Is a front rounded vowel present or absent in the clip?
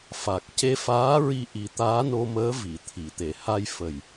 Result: absent